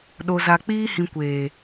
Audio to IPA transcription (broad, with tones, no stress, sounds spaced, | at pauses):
ɗ o˨ z a˨ k͡p iː˦ h ĩ˨ kʷ eː˨